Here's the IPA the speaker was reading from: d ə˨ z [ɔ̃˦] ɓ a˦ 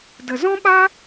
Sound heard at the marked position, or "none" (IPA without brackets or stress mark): ɔ̃˦